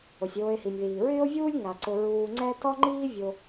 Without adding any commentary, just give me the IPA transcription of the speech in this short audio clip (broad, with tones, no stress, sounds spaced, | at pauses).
o˩ sʲ oː˨ e̯ h i˩ nʲ ð iː˩ ɹ ɪː˥ o̯ vʲ uː˥ lʲ ŋ a˩ ǀ ʊ˨ ɹ uː˨ ŋ͡ǀ ɛ˥ t ɔ˥ ŋ͡ǃ iː˥ vʲ o˨